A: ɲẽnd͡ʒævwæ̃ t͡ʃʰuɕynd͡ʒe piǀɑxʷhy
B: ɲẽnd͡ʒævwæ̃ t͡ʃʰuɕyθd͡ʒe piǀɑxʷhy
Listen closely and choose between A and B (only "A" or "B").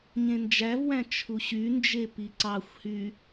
A